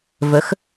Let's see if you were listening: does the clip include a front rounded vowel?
no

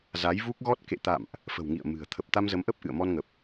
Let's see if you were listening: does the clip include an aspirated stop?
yes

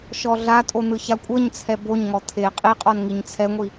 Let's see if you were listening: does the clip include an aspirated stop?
yes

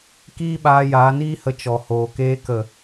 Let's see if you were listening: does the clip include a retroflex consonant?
no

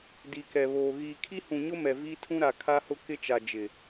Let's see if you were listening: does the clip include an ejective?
no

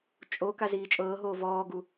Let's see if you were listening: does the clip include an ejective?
yes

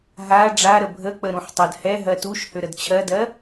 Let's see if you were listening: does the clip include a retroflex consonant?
yes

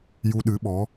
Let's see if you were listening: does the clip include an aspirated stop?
no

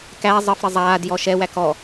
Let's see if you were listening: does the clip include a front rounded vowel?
no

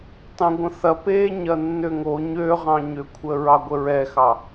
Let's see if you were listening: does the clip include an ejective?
no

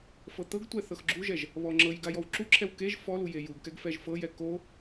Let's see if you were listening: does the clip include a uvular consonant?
no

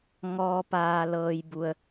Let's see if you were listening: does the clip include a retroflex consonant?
no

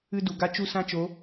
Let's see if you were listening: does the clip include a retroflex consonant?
no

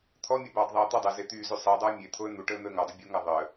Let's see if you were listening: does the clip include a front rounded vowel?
yes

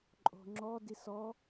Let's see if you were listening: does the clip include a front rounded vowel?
no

